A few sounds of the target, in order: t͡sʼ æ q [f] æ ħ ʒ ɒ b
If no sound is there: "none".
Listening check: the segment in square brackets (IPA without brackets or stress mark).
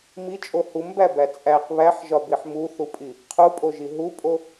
β